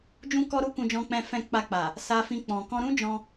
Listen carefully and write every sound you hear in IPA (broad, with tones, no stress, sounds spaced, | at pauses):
d͡ʒ ũ˦ k ɔ˦ ɾ u˦ k ũ˧ d͡ʒ ɔ̃˧ k͡p ɛ̃˧ f ɛ̃˧ k͡p a˧ k͡p a˨ | s a˧ f ĩ˧ k͡p ɔ̃˨ k ɔ̃˧ ɾ ũ˦ d͡ʒ ɔ̃˧